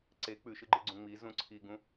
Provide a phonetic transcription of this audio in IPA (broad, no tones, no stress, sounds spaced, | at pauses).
ǀ e k͡p ʉ ʃ ɨ ɡ͡ǃ ɨ ɡ͡ǀ ũ ŋ͡m i z ũ ǀʰ i ɡ ũ